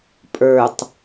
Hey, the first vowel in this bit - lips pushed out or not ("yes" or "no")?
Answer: no